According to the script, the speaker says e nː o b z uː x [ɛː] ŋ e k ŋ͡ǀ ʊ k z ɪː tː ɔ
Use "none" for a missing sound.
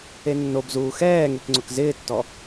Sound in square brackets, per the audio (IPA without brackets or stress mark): ɛː